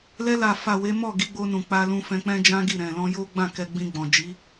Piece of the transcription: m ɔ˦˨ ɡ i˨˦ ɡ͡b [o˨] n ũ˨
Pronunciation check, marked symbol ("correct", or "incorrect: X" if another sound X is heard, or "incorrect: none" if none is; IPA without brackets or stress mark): incorrect: o˧